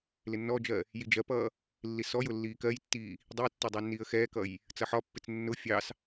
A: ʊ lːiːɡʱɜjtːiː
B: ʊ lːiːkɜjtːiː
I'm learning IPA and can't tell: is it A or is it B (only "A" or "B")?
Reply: B